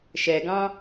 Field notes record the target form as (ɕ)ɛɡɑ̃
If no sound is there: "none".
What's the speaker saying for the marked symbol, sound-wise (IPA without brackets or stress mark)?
ʃ